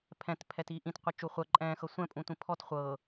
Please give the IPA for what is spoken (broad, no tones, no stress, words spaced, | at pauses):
pʰɛ̃tpʰɛti ʔĩtqʷɪt͡ʃu χʷɜ ǃʼɛ̃ːxɤ sʷɛ̃pʼũtʷĩ pʰɔt χʷɤ